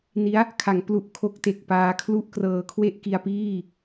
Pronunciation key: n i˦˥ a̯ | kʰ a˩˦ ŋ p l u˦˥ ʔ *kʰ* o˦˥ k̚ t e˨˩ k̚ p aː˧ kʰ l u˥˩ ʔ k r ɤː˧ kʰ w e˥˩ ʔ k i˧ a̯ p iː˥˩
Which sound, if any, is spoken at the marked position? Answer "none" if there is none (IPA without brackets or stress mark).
kʰ